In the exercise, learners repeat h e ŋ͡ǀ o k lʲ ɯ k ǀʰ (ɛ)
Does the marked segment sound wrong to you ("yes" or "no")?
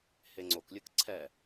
no